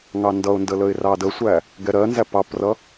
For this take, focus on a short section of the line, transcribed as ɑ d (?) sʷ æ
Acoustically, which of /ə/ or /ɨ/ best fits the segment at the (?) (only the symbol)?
ə